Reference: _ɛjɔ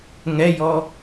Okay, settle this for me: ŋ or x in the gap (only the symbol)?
ŋ